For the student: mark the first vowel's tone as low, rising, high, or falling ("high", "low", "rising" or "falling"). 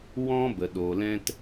high